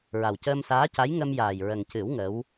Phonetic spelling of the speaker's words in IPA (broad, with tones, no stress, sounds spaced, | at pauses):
ɹ a˨˩ w c əː˧ m s aː˧˥ c a˧˥ j ŋ ə˧ m j aː˨˩ j ɹ ə˨˩ ŋ c ɨ˨˩˦ w ŋ ə˧˥ w